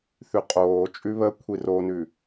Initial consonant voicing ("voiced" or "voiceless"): voiceless